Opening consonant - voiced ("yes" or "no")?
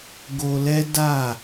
yes